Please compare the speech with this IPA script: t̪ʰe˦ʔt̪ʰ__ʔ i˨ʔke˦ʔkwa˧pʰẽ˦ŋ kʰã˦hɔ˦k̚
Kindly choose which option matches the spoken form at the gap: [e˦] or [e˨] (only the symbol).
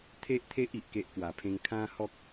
e˦